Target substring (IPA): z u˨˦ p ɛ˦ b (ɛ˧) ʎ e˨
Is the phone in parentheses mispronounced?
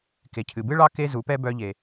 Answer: yes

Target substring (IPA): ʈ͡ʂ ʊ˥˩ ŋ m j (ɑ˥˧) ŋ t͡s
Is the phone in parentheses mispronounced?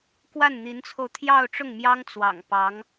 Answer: yes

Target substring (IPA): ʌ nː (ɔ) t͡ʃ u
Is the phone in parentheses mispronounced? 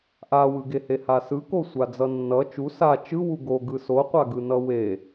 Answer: yes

